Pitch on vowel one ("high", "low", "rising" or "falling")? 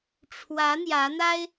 rising